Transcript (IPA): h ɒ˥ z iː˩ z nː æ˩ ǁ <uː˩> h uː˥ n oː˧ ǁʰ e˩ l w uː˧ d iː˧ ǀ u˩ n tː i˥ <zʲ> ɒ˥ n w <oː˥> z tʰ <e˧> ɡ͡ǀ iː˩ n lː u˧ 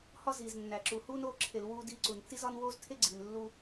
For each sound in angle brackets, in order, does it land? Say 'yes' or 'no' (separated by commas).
no, no, yes, no